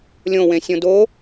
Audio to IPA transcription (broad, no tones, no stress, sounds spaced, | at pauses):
lʲ õ w ẽ sʲ õ d o